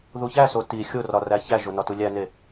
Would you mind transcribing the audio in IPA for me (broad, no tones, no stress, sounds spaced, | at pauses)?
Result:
ð u ç æ s o t i xʲ o r ɒ r æ ç æ ʒ o n ɒ t u lʲ æ n e